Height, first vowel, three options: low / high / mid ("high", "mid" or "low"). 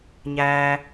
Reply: low